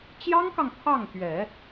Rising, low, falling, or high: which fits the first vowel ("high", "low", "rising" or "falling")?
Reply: high